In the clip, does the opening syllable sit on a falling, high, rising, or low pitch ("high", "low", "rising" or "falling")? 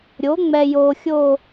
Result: rising